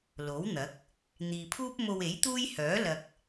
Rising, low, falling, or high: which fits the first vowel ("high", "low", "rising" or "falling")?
rising